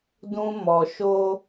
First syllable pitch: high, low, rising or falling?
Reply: high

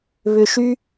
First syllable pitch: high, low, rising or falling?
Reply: low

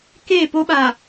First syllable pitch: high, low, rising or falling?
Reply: falling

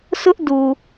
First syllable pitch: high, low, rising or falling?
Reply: high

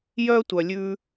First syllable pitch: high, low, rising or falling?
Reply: high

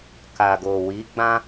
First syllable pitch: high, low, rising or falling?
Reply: low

